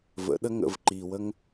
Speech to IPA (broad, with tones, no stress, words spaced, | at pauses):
və̰˨˦ɗə˦ ŋə̰˧v ǃi˨wə˦ŋ